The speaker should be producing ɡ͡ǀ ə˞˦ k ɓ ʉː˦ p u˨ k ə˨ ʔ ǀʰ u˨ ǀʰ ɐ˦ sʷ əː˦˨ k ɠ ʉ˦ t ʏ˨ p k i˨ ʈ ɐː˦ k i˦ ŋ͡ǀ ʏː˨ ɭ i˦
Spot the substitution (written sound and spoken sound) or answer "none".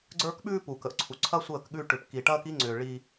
t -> ʈ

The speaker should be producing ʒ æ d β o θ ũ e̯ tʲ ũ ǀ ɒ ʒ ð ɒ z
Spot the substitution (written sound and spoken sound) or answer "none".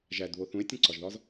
none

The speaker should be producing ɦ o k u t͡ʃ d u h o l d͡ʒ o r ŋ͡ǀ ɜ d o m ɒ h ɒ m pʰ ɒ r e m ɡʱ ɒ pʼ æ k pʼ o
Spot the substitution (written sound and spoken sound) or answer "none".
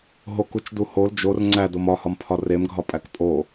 ɜ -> æ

